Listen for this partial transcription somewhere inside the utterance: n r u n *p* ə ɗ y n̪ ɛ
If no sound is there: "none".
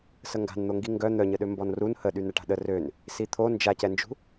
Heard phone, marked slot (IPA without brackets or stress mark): h